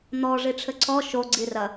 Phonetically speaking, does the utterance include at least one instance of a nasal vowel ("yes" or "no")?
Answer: no